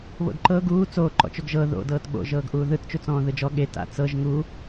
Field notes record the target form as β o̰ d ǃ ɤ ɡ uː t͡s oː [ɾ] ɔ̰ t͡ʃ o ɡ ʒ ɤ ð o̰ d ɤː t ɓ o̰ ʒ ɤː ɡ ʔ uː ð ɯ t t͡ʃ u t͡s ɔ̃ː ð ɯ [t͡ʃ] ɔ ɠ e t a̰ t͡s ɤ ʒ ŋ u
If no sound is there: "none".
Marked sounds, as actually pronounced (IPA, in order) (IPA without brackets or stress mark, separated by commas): ǃ, d͡ʒ